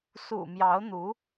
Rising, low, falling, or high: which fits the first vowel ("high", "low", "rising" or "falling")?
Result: low